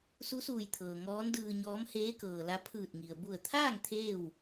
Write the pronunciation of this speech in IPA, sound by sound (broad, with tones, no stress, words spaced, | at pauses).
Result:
su˧˥suː˧˩jt̪ʰɤː˩ ŋɔː˧˥ndɯː˧ɲɔː˧˥m heː˧˥kɤː˩la˧ pʰɯː˧˩t̚ŋi˩ə̯ bu˧˩ə̯t̪ʰaː˥˨ŋ t̪ʰeː˥˨w